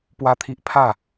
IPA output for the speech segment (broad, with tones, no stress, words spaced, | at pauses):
pwa˦t̪ʰi˦ʔ pʰa˥˧